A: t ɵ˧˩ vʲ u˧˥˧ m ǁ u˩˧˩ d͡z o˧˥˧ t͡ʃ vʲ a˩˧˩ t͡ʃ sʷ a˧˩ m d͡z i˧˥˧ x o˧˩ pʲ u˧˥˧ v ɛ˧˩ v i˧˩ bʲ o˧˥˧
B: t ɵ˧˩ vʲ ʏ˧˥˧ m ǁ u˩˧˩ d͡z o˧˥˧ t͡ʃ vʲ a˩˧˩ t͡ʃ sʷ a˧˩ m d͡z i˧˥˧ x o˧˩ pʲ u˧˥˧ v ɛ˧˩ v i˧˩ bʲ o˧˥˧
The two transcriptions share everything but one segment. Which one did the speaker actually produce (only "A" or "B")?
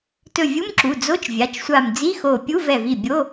A